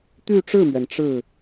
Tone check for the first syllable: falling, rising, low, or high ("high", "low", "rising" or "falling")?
falling